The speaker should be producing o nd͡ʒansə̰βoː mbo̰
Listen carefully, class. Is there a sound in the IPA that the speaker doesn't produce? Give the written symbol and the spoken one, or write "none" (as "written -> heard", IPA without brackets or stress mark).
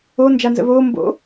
s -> z